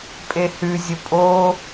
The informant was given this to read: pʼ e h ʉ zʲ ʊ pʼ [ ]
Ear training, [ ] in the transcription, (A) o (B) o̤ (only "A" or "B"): A